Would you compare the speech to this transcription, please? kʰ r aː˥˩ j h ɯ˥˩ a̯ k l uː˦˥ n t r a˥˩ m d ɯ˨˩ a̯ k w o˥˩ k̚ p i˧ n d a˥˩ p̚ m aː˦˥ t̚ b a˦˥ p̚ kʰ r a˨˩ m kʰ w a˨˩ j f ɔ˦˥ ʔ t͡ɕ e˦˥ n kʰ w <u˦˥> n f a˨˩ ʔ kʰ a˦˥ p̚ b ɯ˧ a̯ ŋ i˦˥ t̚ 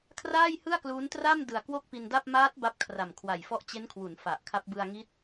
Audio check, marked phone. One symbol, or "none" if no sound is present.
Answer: u˩˦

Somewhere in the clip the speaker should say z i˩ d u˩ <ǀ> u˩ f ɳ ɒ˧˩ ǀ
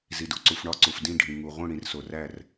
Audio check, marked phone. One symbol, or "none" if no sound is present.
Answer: ǀ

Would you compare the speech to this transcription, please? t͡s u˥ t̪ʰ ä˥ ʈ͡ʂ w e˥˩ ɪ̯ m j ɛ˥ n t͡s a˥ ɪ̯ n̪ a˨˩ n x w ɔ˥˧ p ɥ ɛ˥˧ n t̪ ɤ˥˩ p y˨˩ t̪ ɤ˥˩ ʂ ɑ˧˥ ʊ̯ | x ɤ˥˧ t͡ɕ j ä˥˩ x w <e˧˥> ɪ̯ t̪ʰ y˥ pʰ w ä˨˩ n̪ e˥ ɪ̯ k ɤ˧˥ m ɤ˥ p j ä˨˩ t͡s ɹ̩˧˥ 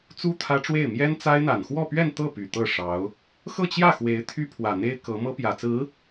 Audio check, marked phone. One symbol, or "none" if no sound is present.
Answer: e˧˥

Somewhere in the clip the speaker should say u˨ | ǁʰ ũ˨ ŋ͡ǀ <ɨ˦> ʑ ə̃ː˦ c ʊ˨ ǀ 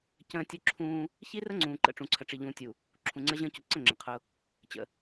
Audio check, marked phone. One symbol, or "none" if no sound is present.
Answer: ə˦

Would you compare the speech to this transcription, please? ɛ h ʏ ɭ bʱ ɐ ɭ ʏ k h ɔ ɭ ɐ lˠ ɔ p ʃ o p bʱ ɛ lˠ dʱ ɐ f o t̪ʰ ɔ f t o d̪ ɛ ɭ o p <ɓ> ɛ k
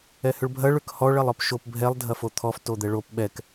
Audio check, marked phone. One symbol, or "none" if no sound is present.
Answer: ɓ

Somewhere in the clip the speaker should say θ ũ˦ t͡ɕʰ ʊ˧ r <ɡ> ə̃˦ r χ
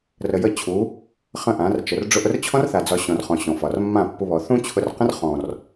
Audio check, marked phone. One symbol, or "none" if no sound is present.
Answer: q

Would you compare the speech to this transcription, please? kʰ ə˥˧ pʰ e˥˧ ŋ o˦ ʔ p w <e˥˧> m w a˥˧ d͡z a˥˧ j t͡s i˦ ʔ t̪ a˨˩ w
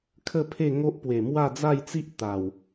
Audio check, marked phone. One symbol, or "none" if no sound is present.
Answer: e˨˩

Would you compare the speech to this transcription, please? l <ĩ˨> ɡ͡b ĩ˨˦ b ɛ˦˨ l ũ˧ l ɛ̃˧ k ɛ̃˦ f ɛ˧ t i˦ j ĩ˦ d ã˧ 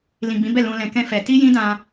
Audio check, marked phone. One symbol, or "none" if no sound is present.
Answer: ĩ˨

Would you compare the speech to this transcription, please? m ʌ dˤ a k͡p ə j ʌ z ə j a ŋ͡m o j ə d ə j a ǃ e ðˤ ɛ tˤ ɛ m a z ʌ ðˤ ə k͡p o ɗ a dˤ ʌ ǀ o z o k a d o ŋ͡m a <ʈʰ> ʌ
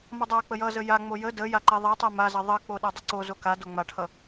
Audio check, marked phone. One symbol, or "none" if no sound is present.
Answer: ʈʰ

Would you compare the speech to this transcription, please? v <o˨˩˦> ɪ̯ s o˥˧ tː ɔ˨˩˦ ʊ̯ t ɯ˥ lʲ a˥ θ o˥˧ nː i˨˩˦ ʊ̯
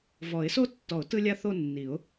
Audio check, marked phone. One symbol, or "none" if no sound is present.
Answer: ɔ˨˩˦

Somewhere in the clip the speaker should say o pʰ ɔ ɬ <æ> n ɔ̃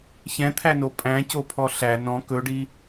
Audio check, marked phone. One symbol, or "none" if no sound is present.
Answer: æ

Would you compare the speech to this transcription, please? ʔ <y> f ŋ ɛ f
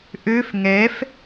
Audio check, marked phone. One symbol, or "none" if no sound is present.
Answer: ø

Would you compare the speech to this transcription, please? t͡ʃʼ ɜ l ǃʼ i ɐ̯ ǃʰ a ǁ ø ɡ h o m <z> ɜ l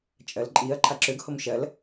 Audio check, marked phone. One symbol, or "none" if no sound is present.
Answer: ʃ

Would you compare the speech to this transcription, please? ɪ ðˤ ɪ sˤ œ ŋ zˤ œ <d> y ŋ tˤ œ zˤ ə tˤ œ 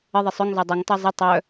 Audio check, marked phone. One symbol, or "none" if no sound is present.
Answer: dˤ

